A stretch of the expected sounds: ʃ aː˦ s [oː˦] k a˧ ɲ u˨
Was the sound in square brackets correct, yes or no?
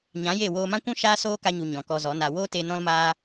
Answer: yes